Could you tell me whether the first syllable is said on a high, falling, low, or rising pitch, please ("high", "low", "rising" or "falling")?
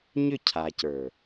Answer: falling